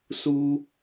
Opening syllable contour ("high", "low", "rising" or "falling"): high